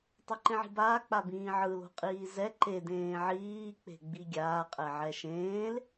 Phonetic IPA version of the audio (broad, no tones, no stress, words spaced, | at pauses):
tˤeǃẽʕi̤baː k͡pabĩːʕɯ lo̤qʼiːzɛ ǃe dẽːʕiː k͡pe̤ɡ͡biɡʲaː qʼɛʕɛʃẽːl